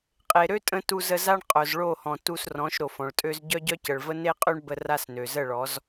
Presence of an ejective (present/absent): present